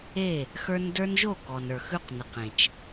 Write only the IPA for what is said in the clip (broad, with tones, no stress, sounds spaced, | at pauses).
e˦˨ | x ə˞˦ n d ə˞˦ n ʒ o˦˨ k ɔ˨ n ə˞˨ x ʉ˦ q n ə˨ q ẽ˨ t͡ʃ